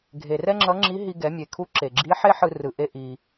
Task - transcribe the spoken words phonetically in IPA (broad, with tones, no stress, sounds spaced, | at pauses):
ɡʱ e˩ r ɛ˥ ŋ͡ǁ ʌ˧˥ ŋ͡ǁ i˧˥ ɦ i˧ ɡ ɛ˩˧ mʲ e˩ kʰ u˧˥ ǁ e˩ ɡ͡ǁ i˧˥ ħ e˥ ħ ɯ˧ r ɯ˩˧ ʔ e˥ ʔ i˩